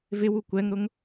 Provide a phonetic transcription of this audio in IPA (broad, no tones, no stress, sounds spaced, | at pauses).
v ɪ w u kʷ ɛ ŋ ɾ ʊ ŋ